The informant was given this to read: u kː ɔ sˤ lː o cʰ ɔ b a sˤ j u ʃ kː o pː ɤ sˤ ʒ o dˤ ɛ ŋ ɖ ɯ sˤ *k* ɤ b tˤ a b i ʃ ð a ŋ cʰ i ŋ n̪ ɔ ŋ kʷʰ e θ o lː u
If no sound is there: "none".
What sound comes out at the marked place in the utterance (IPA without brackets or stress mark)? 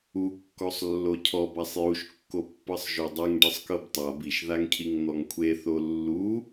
k